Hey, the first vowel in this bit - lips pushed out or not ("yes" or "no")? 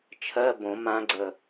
no